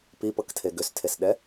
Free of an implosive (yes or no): no